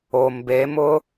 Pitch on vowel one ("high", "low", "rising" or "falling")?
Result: low